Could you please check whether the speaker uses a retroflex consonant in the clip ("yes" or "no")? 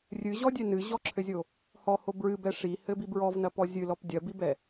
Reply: yes